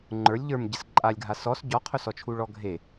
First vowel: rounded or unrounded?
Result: unrounded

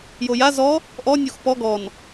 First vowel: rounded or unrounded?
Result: rounded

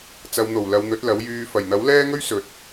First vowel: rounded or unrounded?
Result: unrounded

